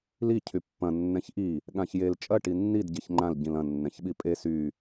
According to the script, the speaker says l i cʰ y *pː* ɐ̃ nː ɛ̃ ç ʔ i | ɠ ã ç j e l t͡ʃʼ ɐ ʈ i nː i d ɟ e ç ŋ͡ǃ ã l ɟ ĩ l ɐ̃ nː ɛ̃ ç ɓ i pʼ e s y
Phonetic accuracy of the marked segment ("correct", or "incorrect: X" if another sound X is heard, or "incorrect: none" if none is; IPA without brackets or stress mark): correct